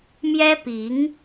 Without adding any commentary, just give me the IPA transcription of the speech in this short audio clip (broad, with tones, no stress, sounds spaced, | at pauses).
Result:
m j ɛ˥ p i˧˥ ŋ